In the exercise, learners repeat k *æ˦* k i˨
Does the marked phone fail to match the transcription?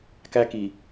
no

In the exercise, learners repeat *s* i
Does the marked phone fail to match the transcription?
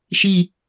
yes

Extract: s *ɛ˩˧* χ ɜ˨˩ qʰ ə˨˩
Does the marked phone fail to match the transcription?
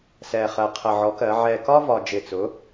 yes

